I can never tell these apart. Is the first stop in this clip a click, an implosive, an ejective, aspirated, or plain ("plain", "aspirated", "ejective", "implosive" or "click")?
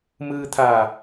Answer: aspirated